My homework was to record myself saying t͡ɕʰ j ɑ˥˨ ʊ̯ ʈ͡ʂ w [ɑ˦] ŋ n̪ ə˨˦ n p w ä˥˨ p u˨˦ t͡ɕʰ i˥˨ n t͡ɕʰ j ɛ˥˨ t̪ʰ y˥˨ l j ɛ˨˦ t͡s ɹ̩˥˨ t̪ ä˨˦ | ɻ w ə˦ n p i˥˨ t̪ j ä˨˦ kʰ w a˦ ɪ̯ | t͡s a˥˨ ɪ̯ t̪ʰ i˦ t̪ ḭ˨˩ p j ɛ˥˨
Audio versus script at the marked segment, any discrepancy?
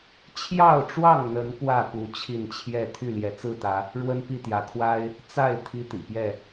yes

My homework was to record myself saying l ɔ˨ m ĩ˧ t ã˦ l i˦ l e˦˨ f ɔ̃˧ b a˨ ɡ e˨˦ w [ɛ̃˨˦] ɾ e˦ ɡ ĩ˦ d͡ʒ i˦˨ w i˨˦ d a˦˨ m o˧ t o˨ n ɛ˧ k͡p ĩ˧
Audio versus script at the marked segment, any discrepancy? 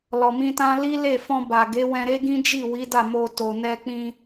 yes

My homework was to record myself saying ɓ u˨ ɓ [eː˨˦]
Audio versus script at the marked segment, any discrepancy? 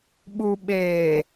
yes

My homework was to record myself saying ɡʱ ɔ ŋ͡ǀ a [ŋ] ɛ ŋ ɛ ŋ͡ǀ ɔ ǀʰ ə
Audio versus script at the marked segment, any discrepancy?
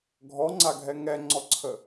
yes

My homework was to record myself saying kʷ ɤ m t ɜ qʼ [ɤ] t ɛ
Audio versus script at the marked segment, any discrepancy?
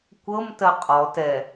yes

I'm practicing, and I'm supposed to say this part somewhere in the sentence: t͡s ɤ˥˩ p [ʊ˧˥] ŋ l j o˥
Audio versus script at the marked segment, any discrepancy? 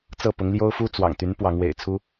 no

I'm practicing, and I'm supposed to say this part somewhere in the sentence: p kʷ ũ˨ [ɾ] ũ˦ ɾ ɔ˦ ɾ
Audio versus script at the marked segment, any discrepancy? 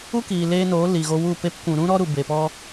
no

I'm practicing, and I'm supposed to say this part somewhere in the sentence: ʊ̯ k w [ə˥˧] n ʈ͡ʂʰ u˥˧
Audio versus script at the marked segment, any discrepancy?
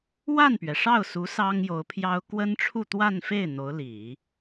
yes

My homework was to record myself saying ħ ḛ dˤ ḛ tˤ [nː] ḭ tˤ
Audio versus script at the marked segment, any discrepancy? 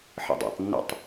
no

